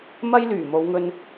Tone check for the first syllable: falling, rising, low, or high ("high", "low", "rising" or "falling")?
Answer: high